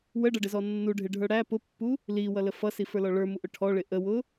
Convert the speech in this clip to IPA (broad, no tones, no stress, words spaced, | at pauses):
wəɖʌɖɪzɔ nːuɖʱɪɖʱə˞ ɽæ pʊpːu | liwʌlə fʌsifə˞lɔ ɭə˞muʔʊ ʈʰɔɭɪ ʔəwʊ